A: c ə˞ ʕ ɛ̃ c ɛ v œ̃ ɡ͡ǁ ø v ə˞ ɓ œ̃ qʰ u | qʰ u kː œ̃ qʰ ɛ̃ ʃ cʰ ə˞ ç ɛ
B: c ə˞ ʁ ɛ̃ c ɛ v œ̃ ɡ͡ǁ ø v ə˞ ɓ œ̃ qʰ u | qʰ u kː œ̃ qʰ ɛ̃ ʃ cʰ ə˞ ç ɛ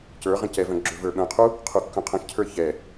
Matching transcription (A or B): B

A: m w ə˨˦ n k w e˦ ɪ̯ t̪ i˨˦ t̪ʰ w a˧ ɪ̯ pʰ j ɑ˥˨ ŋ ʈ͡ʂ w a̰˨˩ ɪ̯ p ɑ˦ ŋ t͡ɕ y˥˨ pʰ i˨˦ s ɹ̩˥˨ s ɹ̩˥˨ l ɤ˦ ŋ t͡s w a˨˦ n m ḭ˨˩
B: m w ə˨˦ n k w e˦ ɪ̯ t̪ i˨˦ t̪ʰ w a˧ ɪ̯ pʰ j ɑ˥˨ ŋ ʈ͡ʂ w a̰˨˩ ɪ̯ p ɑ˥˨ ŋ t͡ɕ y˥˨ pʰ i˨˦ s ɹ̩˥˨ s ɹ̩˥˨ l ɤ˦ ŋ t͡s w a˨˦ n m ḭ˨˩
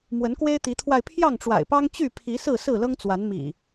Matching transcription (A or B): A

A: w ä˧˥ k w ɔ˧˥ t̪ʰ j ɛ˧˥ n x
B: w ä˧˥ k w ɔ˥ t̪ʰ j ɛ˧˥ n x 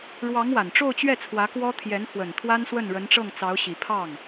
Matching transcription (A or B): B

